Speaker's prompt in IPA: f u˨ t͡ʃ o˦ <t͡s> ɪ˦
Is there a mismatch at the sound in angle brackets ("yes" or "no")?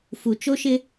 yes